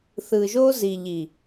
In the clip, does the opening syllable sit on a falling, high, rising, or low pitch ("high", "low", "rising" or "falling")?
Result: low